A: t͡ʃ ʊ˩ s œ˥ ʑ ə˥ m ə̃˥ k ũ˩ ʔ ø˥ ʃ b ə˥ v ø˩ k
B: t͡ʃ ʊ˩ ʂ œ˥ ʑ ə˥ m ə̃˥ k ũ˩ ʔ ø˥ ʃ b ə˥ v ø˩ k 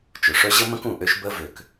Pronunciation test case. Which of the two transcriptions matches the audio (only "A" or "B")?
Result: B